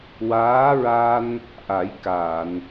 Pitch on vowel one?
rising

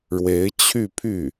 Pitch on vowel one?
rising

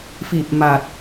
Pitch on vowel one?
low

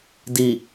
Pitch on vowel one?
low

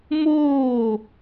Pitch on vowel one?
falling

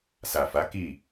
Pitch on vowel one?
low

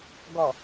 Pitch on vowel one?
low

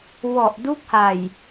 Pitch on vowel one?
low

